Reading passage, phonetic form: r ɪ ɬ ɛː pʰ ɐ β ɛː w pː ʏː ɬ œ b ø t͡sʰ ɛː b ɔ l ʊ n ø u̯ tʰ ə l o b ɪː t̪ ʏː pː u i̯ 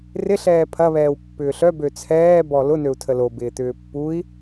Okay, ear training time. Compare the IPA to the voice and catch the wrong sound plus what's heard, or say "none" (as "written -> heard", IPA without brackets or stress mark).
none